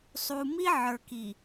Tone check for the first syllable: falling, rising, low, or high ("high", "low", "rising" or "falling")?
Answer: low